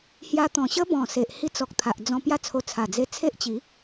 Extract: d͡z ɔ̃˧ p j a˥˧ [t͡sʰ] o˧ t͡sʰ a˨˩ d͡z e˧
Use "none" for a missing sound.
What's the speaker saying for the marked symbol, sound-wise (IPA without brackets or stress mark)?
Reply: t͡sʰ